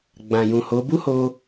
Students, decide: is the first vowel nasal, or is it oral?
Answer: nasal